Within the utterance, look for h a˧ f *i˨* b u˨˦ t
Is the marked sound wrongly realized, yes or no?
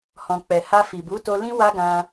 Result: no